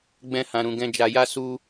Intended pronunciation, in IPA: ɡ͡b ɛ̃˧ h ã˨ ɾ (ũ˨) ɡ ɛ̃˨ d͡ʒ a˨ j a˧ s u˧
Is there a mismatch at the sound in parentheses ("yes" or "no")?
no